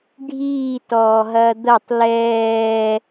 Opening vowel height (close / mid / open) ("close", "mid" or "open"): close